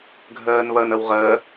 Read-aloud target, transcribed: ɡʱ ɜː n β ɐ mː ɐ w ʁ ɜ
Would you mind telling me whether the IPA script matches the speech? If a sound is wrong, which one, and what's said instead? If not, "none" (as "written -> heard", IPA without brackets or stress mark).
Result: mː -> n